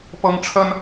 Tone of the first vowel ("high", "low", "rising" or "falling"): high